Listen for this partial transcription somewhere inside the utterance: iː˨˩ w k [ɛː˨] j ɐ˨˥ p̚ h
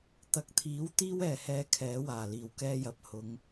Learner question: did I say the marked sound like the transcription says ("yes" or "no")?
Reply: no